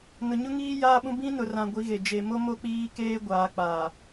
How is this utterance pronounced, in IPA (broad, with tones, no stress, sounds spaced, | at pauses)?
n ʊ˨ ɲ ʊ˦ ŋ iː˦ j aː˦ ɓ ũ˦ b ĩ˦ n ʊ˨ r ã˨ ɡʷ i˨˦ ɣ e˨ d͡ʒ e˨ m o˦ m o˦ k͡p iː˦ k eː˦ ɡʷ aː˨ k͡p aː˨